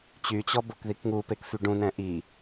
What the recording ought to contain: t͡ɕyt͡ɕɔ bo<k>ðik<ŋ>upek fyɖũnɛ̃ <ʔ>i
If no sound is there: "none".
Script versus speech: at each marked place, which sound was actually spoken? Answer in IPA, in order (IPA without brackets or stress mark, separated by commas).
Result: k, ŋ, ʔ